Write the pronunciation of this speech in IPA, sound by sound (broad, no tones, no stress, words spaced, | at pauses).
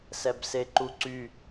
sɛbseǃuǀy